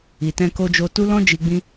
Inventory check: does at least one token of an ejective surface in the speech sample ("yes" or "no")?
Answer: no